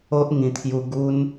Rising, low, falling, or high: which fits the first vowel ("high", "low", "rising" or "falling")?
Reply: high